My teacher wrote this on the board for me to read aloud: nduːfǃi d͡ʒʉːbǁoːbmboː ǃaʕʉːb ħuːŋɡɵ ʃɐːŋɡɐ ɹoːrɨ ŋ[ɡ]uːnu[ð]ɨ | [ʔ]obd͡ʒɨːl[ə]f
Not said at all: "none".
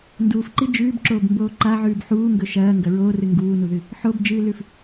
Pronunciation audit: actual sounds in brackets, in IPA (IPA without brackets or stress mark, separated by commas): ɡ, ð, ħ, ʉ